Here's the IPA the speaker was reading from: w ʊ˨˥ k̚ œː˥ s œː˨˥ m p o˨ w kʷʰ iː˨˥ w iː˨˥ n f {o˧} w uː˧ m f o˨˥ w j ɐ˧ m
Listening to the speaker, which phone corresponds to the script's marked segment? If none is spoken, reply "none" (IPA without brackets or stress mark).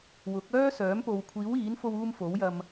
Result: o˧